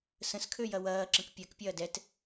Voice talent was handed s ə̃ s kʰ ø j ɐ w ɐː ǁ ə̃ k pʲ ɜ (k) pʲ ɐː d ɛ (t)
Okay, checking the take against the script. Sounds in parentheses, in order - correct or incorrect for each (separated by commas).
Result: correct, correct